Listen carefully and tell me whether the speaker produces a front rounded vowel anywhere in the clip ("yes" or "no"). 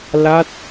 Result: no